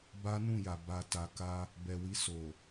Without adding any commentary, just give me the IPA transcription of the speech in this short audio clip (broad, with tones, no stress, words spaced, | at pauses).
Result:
ba˦ nũ˦˨ja˨ ba˨ta˨ ka˧ | bɛ˨wi˧ so˨